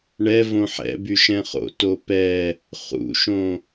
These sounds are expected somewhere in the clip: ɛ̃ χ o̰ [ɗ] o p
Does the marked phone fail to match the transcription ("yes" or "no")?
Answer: yes